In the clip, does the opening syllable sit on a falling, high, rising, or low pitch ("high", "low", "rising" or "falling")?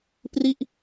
falling